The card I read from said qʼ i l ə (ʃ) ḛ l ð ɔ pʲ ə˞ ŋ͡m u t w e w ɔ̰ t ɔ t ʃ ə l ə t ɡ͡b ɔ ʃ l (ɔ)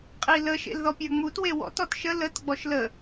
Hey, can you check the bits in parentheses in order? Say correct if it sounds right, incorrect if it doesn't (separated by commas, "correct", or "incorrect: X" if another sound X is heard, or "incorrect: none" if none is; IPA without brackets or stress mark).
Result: correct, incorrect: ə